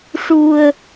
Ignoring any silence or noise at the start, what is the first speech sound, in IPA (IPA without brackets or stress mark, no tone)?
ʂ